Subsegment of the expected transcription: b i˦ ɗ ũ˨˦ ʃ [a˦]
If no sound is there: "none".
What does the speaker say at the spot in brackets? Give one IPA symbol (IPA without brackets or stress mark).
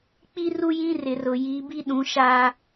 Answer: a˦